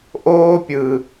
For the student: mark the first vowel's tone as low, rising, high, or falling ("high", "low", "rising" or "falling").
high